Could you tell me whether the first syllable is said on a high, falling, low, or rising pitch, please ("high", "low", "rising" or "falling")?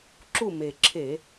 falling